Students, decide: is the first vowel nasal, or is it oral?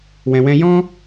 nasal